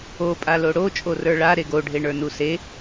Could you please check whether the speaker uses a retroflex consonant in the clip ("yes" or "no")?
yes